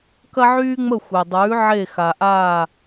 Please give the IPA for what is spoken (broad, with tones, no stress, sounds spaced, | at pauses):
k ɐ˥ ʕ yː˥ ŋ͡m ə˥˩ xʷ e˩ dˤ ʉː˩˥ ʕ e˥˩ x a˩ ʔ aː˥˩